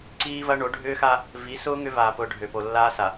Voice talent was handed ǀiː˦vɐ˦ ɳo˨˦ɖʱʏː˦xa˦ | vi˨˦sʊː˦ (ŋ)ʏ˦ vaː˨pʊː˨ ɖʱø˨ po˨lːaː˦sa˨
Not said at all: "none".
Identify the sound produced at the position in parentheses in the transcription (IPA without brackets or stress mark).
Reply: ŋ